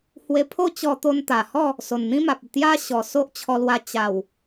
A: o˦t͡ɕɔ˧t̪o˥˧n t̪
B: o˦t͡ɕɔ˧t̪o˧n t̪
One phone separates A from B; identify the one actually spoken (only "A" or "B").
B